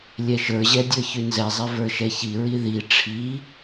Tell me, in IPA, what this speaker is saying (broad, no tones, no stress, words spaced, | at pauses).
lʲɛʃə˞ʑɛ dʲə˞çʉnzɛzˤɛ və˞ʃɛçiɹi ði ʈ͡ʂʰi